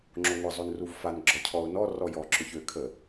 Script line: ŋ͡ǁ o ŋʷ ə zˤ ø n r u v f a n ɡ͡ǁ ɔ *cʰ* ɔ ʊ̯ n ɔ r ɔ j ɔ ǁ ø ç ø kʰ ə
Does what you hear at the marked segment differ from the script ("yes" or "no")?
no